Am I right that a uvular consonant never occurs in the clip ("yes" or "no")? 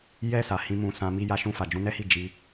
yes